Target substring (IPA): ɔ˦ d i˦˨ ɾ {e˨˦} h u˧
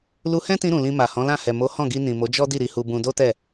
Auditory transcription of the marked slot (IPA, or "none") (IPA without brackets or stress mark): i˨˦